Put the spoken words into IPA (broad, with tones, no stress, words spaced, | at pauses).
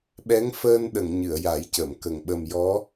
ɓɛ˧˥ŋfəː˧nɗə˨˩˨ŋ ɲɨ˨˩˨ə̯ja˨˩˦jcə˨˩˨mkə˨˩ŋ ɓə˨˩mjɔ˧˥